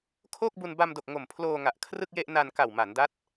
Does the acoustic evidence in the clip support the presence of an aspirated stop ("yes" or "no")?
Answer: yes